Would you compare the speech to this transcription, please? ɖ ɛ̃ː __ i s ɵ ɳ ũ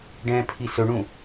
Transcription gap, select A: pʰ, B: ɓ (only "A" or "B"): A